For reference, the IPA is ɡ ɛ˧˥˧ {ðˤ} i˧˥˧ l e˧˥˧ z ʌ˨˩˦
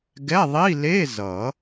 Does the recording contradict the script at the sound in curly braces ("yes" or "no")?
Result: no